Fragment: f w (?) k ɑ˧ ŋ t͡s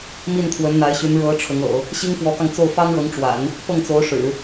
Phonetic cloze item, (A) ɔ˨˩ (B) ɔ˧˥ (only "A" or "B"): B